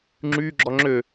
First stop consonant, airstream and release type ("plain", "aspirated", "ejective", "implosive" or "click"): click